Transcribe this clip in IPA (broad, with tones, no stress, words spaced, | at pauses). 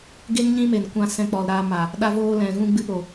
ɡe˦ŋ ɲĩ˦me˨n kʷã˧ sɛ̃˧k͡pɔ˨lɾaː˧ma˨ | ɗa˧voː˧lɛ̃˨ ɣũ˧ɡ͡bɨ˧po˨